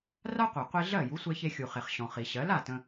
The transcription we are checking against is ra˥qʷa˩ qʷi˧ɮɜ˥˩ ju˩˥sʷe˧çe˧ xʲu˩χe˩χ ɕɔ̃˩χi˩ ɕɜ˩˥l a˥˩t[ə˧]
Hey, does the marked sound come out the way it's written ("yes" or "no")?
no